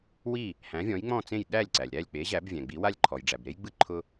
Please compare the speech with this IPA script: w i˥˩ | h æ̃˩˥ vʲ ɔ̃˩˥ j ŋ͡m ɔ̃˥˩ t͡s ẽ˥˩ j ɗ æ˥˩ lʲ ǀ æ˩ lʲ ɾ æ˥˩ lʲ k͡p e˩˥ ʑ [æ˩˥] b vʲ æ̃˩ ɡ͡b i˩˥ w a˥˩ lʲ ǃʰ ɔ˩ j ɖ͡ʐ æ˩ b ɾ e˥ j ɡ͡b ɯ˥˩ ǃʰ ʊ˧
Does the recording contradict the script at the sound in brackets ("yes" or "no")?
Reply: no